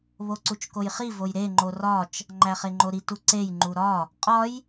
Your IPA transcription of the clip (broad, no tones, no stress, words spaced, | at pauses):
βoǀut͡ʃkojχi vojɾe ŋ͡ǃorɒt͡ʃ | ŋ͡ǃæχeŋ͡ǃoɾi tuǀej ŋ͡ǃuɾɒ | qʼɒj